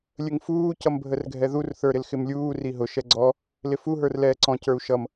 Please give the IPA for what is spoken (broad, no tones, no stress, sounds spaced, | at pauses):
lʲ ə ŋ f uː c ʌ m bʱ ə r ɡʱ ɛ ð u r θ ə˞ ɾ ɪ l x ɪ m lʲ uː r i ɦ ʊ ʃ ɛ ɡ͡ǀ ɔ | l ɪ f u ɦ ə˞ r l ɛː ǀ ɔ̃ c ə˞ u̯ ʃ ʌ m